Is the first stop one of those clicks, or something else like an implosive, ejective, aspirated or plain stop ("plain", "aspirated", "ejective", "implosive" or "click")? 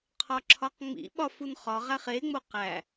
aspirated